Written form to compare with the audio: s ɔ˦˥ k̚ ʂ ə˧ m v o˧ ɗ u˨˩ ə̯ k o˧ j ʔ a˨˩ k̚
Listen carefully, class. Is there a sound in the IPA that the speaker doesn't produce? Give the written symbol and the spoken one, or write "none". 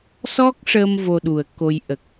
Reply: a˨˩ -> ə˨˩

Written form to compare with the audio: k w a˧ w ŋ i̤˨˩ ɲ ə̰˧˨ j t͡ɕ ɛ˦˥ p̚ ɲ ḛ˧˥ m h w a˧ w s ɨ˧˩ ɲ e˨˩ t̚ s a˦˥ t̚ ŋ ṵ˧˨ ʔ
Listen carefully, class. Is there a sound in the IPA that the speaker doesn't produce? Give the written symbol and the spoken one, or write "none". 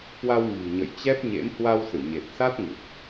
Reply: none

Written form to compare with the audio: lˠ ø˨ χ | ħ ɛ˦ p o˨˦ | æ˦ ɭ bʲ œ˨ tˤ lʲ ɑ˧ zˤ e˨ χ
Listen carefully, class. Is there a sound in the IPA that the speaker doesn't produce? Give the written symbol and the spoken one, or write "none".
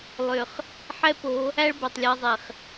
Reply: bʲ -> b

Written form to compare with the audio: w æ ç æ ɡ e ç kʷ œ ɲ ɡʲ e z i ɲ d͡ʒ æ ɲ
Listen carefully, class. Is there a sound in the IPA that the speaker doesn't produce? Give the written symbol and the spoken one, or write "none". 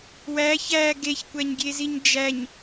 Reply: œ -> æ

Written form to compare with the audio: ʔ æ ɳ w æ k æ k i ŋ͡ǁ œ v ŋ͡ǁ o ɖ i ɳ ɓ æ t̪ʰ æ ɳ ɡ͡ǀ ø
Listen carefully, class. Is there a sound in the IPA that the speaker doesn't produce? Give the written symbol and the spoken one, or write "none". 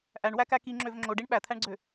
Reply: œ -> ø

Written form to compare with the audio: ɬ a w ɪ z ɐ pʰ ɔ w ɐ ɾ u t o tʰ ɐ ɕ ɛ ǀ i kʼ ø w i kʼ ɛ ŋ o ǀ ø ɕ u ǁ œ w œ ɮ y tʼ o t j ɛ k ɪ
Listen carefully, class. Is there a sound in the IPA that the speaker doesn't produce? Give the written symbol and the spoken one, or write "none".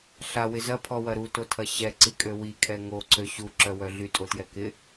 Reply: none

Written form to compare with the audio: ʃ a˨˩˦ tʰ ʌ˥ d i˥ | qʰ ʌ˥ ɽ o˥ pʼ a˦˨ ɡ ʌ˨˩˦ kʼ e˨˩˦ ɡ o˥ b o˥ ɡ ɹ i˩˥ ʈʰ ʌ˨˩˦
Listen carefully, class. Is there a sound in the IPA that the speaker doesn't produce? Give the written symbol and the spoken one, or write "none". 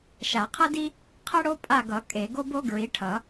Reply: tʰ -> qʰ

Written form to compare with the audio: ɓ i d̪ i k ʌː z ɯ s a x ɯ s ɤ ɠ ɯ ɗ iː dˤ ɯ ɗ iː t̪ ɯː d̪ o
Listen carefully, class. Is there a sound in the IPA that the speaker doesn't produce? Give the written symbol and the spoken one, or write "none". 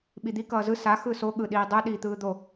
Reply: ɤ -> o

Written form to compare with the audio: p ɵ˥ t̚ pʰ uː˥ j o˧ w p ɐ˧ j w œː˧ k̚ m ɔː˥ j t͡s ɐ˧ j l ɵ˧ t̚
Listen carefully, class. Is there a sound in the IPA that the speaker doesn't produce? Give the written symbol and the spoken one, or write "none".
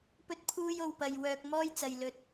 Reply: none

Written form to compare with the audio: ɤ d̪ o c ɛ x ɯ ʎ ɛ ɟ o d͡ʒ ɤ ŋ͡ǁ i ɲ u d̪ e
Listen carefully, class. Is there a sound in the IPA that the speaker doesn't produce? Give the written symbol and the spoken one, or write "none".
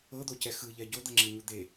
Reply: d͡ʒ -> d̪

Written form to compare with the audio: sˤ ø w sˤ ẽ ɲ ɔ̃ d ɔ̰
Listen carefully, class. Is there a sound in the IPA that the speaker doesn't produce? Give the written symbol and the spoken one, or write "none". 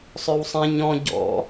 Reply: d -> ɟ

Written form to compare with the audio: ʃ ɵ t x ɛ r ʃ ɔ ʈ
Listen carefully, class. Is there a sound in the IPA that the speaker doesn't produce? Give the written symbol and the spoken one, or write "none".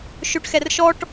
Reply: t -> ʈ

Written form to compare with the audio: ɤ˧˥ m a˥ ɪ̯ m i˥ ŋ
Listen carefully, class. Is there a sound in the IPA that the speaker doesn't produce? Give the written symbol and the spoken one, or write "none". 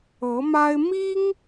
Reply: none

